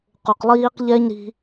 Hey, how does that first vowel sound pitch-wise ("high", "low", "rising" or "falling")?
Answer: low